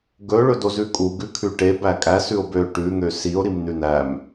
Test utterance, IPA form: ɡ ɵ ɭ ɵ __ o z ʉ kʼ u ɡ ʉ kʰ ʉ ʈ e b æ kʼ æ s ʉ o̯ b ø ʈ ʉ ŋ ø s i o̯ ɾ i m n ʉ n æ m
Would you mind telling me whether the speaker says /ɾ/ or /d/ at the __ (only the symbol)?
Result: d